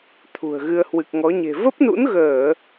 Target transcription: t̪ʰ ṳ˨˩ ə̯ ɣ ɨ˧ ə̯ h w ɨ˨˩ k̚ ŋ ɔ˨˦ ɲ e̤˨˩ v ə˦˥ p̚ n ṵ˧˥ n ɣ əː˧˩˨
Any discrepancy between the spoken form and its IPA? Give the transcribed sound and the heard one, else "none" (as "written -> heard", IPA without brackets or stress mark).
none